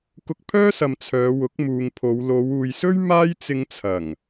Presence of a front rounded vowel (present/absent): present